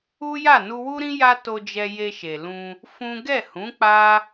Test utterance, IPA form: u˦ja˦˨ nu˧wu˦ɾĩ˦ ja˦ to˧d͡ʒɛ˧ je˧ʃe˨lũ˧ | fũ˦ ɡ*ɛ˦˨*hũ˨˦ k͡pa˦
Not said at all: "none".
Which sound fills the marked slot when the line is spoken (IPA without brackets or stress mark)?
ɛ˦˨